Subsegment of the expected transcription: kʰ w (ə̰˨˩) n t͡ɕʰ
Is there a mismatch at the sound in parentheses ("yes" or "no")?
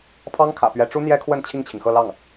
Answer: yes